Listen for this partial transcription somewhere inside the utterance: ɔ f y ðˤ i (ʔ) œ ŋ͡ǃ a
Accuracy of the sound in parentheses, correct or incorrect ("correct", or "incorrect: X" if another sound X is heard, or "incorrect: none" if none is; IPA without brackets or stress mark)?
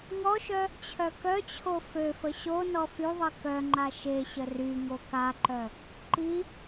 incorrect: k